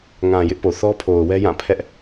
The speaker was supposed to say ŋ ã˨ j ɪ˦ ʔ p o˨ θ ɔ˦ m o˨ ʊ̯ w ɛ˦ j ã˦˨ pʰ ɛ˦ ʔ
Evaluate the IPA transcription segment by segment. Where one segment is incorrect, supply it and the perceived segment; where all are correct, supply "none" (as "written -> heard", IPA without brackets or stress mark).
m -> pʰ